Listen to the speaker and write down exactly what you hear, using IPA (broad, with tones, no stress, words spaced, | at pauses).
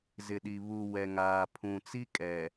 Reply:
zɪ˨ɗi˨βu˨ wɛ˨ŋaː˨pʰũ˨t͡si˦ kʼɛ˨